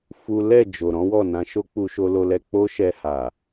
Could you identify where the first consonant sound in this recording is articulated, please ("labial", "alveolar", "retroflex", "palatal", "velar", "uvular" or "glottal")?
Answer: labial